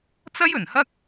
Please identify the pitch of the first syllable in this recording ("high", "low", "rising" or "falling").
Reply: high